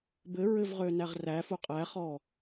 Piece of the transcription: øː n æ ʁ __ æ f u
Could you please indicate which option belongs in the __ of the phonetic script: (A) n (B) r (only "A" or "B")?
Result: B